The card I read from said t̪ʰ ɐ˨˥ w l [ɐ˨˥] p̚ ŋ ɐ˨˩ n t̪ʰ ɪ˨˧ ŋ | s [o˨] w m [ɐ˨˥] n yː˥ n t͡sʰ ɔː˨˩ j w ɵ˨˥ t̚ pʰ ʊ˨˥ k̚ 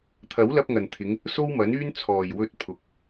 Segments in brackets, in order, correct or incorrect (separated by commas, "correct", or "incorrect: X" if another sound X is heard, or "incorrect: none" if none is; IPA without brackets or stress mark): incorrect: ɐ˧, incorrect: o˥, correct